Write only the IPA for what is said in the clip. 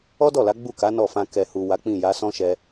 ɔ˦dɔ˦˨la˨˦ ɡ͡bu˦˨ka˨˦ nɔ˦˨fã˧ kɛ˨hu˨ wa˨˦k͡pĩ˦˨ja˨˦ sɔ̃˦ʃɛ˧

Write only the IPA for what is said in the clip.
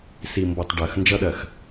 si˨mbɔ˨tˤ ɖɜ˨x nd͡ʒʌ˦ɗɜ˨x

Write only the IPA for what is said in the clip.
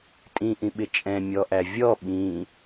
tʼĩʔĩɓɪ t͡ʃʼɛ̃mʲɔʔæ vʲɔ ɓĩ

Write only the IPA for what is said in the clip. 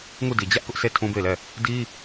ŋu˦˨di˨ d͡ʑä˦ʔ kʊ˦ʔsʰe˦ tʰũ˦be˦˨ɪ̯lɛ˦˨ | di˦

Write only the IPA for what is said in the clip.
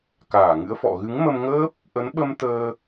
kaː˧˩ŋɨ̰˧˥ə̯fɔ̰˧˨ ɣɨ˨˦ŋmə˧mŋəː˦˥p̚ | ʔə˨˦nɓə˧m t̪əː˧

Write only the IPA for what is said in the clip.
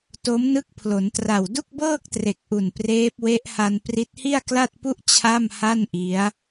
to˦˥mnɯ˦˥k̚pʰlo˩˦ntra˨˩w du˥˩k̚bɤː˥˩k̚tre˨˩k̚ʔu˨˩n preː˦˥p̚we˦˥ʔha˧n pri˦˥t̚hi˥˩a̯kla˥˩t̚pu˥˩ʔ t͡ɕʰa˥˩mha˥˩n ʔi˦˥a̯

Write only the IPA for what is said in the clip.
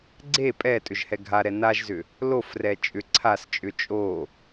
ɡ͡ǀe pʼɛ tʼʏʒhɛɡʱaɾɛ naʒzʏ | lofrɛ t͡ʃʼʏ ǀʰast͡ʃʼʏ t͡ʃʼo

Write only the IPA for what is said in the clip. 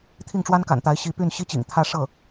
t̪ʰi˥˩ŋʈ͡ʂwa˥nka̰˨˩nt̪a˧˥ɪ̯ ɕi˧˥py˥˩n ɕi˥t͡ɕḭ˨˩ŋt̪ʰä˥ ʂɤ˥˩

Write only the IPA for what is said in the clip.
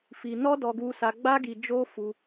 fi˧nɔ˦ dɔ˦ɡu˦sa˦ ɡ͡ba˦ɡi˧ d͡ʒo˦fu˧

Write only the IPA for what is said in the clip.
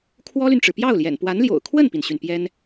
kʰwɔ˥ly˨nʈ͡ʂɻ̩˩ pjɑ˥˩ʊ̯ljɛ̰˨˩npwa˧˥nljo̰˨˩ʊ̯ kʰwə˥˩npi˩nɕy˩n pjɛ˥n

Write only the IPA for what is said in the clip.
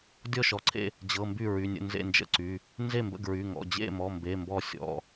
dʲɔ˥˩ʃɔ˩˧˩ǀʰḛ˥˩ | d͡ʑɤ˩˧˩ mby˥˩ɹy˩˧˩nʲə̰˥˩ nzḛ˥˩nd͡ʒə̰˥˩ǀy˩˧˩ | nze˥˩mbə̰˥˩ɡɹy˩˧˩ ŋɔ̰˩˧˩d͡ʑḛ˥˩mɔ˩˧˩ mbe˩˧˩ mbɔ˥˩ sʲɔ̰˩˧˩

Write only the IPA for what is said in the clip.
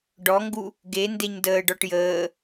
ɖɔŋɡu | ɡe ndeɲdəːɖɔʈ jəː

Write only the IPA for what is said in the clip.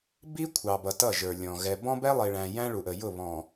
bi˦ kʷʰɑ˨bʌ˨ tʌ˦˨ʒə˞˨lʲɔ̃˨ ɣɛ˨ bɔ̃˦bɛ˦lˠi˨ɭæ̃˨ jæ̃˦ɭu˨ʔə˨ jʊ˦˨βɔ̃˨

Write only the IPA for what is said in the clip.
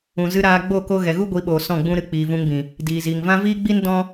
ũ˨zɨ˧ ɾaː˧ ɡ͡bo˦˨ko˧ ɣɛ˨ɣu˦ɡʷi˨˦ɓoː˨ sɔ̃˦˨ɡ͡bũ˦ɾɨ˧ k͡piː˨vũ˧ŋbĩ˨ | diː˨ziː˨ŋvã˦ viː˦ɡ͡bi˦n dɔ̃˦

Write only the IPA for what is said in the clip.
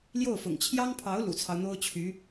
ljo˥˩ʊ̯fʊ̰˨˩ŋ t͡ɕʰjɑ˥ŋpʰɑ˧˥ʊ̯ lṵ˨˩t͡sʰɑ˦ʊ̯n̪o˥ʊ̯t͡ɕʰy˧˥

